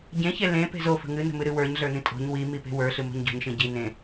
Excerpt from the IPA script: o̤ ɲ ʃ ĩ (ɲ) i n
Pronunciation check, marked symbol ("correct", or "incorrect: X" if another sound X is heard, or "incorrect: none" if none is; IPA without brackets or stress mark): incorrect: ɟ